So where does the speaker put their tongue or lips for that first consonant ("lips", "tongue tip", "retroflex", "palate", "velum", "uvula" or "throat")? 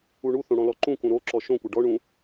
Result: retroflex